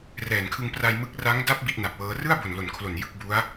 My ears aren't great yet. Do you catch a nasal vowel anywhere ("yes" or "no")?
no